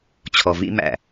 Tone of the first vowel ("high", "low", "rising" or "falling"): low